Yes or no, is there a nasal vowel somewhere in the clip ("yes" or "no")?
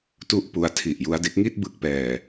no